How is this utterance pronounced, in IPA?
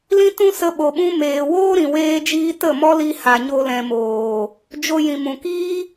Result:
lĩ˦tũ˦sə˧ ɓo˨ɓũ˧meː˨woː˦ ɾĩ˨weː˦d͡ʒiː˦ tə˦˨mɔ˦li˧ ha˨ɲo˧lɛ̃˨moː˨ | d͡ʒo˧jĩ˨mũ˨ kiː˦

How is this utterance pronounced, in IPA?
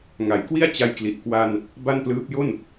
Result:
ŋa˩˦jkwi˥˩a̯ t͡ɕa˧jkli˨˩ʔ kwa˧n | ba˥˩nplɯː˦˥p̚ jo˥˩n

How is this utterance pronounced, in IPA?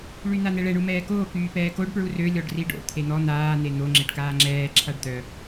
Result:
ɭyn̪an̪ɛɭɛ ɳumɛːkoː kyːpɛːkoɖ pɹurø lʲɔɖriɖo̰ t̪ʰen̪ɔ n̪aː n̪en̪o ŋ͡ǁeɖkaːŋ͡ǁɛː ǁʰaɖd̪œ

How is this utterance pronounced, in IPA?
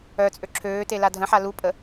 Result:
œt͡sʼø ǁʰøːte ladʱə̃ħa lupʼə

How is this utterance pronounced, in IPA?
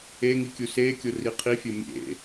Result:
e ŋikʲusekʲo riqʰifʲo mʲḛ

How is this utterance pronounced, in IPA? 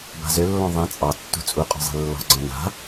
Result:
ba̤zølːɔ̃ ðˤẽ t͡sʼɑtːṳ t͡sʼuqʼɔ̤zˤe̤ lːɔ̤ɡ͡ǀɔ̃ na̤

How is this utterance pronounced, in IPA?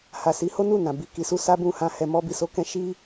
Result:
ha˨si˨˦ho˦nu˦˨ nã˨bi˧ki˧ su˦ sa˦bũ˦˨hã˧ hɛ˨ mɔ˧bi˨so˨˦ kɛ̃˧ ʃi˦

